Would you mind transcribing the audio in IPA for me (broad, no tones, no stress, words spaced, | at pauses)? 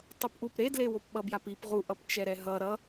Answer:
tˤʌpʔup ɾedlewop ɓʌbjapip ʁuʔʌp t͡ʃɛɾɛɦʌ ɾʌ